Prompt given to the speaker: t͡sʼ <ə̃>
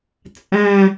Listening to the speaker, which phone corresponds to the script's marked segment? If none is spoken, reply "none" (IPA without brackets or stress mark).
æ̃